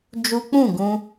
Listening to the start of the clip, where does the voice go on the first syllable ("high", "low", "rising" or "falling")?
high